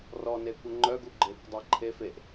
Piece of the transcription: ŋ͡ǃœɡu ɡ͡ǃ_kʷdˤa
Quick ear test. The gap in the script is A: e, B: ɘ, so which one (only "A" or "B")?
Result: A